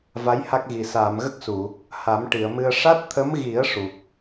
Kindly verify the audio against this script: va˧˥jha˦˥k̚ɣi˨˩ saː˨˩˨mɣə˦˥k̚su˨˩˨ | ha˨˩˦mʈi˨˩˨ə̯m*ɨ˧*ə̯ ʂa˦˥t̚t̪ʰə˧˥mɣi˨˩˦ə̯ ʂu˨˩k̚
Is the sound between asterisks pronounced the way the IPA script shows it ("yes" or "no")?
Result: yes